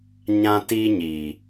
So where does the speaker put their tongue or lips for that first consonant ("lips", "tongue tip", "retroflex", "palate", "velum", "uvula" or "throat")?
palate